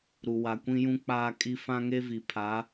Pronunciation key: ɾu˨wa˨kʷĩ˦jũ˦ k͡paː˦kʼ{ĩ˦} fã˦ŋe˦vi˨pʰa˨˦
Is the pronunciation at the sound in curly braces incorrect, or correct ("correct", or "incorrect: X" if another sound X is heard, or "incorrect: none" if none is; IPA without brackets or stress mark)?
incorrect: i˦